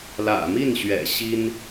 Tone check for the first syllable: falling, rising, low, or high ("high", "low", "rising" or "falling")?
low